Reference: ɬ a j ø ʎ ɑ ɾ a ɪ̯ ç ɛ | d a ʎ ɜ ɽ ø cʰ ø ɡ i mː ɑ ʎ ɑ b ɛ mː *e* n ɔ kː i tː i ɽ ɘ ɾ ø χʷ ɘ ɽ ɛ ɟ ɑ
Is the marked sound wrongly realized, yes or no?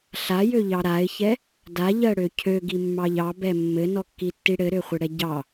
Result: yes